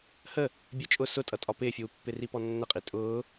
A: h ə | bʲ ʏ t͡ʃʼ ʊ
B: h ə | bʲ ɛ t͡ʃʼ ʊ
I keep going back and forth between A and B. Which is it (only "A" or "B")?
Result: B